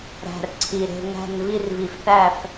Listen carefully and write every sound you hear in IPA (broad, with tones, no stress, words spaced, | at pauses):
ɾæ̤˩rǀʰi˩ɾe̤˧˩ ŋæ̤˧˩n vi˧˩rvi˩fθæ˧˩f